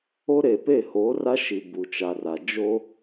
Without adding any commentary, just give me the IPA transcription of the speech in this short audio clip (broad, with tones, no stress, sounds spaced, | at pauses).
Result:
o˦ ɾ e˨ p e˦˨ h oː˨˦ r a˦ ʃ i˨ b u˨ t͡ʃ a˨ r a˨ d͡ʒ o˦